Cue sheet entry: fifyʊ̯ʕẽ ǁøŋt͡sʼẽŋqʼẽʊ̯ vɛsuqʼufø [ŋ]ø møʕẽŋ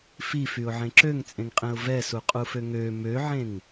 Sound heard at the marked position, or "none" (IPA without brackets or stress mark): ŋ